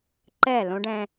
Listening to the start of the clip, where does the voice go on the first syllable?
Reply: falling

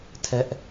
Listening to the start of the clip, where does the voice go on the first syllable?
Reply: high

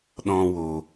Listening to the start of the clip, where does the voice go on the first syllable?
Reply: high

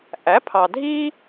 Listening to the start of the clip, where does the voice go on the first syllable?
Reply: rising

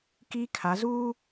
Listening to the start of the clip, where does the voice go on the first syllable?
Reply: high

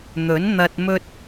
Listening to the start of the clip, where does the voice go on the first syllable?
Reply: rising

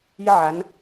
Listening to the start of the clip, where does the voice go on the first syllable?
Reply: high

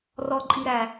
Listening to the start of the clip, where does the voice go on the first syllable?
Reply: low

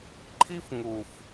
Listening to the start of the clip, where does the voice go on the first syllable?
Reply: high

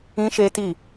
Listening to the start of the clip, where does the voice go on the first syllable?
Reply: high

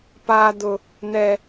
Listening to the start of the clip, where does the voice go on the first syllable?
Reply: high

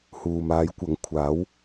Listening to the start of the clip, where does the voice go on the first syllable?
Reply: low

